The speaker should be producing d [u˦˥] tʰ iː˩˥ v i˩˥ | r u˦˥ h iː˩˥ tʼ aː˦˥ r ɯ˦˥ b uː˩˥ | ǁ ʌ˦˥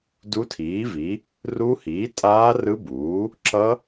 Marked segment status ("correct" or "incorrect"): correct